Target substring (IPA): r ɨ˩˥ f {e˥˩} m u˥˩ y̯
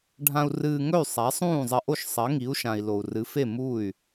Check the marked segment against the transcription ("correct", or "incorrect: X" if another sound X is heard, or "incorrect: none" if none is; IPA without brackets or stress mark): correct